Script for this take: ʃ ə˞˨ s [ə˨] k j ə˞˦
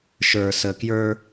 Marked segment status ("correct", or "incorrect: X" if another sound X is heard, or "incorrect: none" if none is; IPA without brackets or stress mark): correct